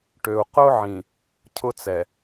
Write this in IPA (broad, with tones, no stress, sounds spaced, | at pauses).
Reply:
ʈ ø˨ u̯ q ʊ˦ ʕ ĩ˨ | cʰ ʊ˦ t͡s ɛ˨